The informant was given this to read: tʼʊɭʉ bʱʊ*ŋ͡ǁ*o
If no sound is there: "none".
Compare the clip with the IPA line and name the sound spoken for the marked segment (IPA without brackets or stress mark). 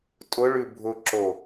ǁ